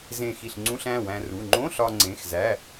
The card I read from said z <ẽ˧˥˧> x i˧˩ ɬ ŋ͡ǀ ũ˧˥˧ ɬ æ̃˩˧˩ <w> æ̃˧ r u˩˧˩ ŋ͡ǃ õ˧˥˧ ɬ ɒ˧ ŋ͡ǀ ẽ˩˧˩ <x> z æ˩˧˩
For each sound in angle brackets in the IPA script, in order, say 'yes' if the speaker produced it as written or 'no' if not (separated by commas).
no, yes, yes